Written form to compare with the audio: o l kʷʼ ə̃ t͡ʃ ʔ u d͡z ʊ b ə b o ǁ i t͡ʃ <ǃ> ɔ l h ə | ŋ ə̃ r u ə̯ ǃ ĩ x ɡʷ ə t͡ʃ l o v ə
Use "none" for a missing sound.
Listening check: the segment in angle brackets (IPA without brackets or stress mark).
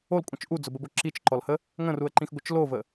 ǃ